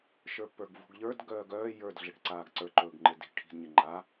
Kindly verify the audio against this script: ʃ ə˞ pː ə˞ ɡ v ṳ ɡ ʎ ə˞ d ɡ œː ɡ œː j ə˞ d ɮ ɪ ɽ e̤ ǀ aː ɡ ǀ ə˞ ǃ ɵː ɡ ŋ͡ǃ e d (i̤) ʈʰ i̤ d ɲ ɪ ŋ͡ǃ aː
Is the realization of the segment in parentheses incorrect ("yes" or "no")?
no